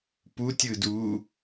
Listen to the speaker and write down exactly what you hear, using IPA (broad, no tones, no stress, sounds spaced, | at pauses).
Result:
p u tʲ ɯ d uː